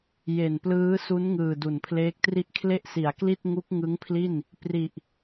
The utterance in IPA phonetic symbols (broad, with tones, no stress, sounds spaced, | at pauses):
j e˨˩ n p l ɯː˦˥ s u˦˥ n ŋ ɯː˨˩ d u˨˩ n pʰ l eː˦˥ k̚ t r i˥˩ ʔ kʰ l e˥˩ ʔ s i˩˦ a̯ k l i˥˩ t̚ ŋ u˦˥ k̚ ŋ ɯ˦˥ ŋ pʰ l i˥˩ n | p r i˨˩ ʔ